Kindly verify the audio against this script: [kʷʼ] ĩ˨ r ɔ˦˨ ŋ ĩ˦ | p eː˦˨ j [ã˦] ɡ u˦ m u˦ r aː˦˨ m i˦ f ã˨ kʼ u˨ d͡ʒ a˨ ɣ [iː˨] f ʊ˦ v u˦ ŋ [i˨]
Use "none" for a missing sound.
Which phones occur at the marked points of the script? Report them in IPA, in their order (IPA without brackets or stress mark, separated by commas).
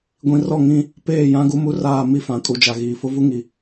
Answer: ɡʷ, ã˦, iː˨, i˨